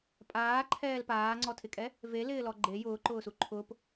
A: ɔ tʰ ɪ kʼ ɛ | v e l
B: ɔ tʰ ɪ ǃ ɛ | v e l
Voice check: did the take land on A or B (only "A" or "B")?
A